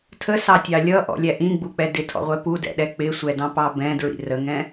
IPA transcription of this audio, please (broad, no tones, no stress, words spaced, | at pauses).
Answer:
tʰəsɑtʲɑ lʲʌʔɔ̰lʲæ ʔĩɡ͡buk͡pɛ dɪtʰɔ̰ʁʷɛ pudɛ̰ɗɛ k͡pɪsʷɛdɑ̃pɑ bɛ̃dɹḭ rəŋɛ̃